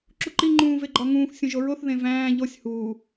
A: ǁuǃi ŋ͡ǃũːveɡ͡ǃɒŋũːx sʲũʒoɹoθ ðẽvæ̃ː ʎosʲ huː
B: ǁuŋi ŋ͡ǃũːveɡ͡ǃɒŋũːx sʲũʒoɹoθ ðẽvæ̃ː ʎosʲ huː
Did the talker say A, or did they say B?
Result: A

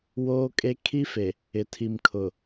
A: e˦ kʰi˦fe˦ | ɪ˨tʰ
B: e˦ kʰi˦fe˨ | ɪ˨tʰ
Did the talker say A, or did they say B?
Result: B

